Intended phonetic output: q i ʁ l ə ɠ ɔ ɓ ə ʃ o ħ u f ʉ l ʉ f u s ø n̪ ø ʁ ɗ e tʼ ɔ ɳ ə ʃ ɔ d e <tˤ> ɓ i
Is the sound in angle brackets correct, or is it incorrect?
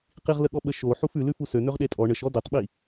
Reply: correct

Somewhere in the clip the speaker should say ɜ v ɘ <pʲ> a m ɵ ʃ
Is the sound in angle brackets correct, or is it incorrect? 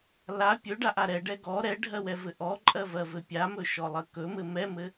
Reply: correct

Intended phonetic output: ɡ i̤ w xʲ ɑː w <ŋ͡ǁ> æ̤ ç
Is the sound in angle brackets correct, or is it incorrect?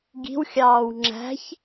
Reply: correct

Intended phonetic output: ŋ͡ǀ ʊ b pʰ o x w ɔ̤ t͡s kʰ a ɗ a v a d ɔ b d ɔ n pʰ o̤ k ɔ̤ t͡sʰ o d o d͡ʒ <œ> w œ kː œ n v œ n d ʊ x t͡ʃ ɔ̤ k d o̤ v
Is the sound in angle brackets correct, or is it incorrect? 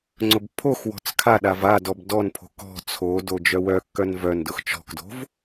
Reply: correct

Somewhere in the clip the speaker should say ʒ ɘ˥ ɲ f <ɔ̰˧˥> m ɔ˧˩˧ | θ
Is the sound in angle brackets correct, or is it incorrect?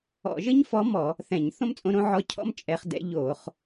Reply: incorrect: ɔ˧˥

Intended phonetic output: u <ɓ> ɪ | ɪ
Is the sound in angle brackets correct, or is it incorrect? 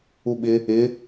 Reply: correct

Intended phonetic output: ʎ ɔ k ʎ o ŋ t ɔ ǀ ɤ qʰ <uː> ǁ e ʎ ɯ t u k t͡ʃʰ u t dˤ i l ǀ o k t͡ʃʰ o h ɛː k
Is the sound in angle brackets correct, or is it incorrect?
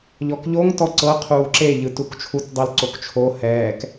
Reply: correct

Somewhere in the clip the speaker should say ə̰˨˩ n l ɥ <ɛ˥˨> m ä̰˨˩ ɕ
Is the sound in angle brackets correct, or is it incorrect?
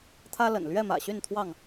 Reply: correct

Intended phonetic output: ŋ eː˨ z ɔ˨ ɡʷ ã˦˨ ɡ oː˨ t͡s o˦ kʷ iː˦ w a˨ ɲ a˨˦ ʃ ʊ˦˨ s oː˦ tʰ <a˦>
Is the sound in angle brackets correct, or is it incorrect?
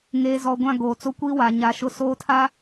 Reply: correct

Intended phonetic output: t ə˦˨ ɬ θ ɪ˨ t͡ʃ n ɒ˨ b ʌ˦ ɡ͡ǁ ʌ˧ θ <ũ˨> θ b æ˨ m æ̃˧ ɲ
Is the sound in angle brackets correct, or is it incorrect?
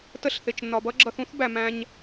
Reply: incorrect: ũ˦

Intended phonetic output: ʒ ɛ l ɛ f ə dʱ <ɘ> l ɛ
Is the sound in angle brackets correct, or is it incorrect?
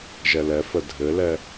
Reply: correct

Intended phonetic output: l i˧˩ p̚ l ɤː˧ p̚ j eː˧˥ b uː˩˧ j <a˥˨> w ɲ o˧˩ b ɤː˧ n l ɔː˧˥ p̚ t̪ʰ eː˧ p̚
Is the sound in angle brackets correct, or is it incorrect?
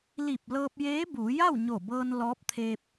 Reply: correct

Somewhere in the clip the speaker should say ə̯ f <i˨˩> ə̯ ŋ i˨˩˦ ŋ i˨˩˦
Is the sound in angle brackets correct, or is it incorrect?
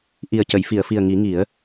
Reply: correct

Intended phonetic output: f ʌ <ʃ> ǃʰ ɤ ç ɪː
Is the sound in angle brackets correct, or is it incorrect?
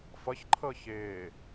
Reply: incorrect: ç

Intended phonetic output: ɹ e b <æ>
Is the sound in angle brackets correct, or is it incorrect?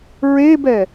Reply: incorrect: ɛ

